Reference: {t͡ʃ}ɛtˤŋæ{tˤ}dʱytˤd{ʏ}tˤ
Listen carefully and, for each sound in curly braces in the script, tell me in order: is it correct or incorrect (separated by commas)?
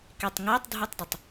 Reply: incorrect, correct, correct